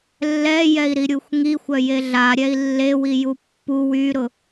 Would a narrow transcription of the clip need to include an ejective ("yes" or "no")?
no